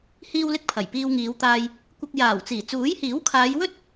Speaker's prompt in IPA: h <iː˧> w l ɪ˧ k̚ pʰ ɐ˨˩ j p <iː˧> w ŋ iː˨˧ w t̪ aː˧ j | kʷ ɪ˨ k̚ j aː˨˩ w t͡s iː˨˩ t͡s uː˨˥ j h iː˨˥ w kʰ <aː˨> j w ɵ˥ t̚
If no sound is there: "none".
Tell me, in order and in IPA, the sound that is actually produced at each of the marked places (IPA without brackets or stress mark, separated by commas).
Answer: iː˧, iː˧, aː˨˧